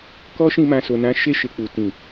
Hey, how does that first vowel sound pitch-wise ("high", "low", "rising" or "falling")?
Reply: high